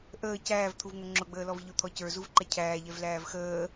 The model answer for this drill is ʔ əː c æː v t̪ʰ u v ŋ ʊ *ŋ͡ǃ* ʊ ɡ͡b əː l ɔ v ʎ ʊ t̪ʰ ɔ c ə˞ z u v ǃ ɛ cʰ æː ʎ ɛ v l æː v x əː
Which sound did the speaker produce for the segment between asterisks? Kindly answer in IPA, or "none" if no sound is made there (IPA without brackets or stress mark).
ŋ͡ǁ